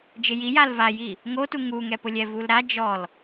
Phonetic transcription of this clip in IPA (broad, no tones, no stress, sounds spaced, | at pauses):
d͡ʒ ɪ j i j a l v a j i | ŋ o t u ŋ u ŋ ɛ p ʊ lʲ ɛ v u l ɾ a d͡ʒ ɔ l